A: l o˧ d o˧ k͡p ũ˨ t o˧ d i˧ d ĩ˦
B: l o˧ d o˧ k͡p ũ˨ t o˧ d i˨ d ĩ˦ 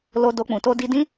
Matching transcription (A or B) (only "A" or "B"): A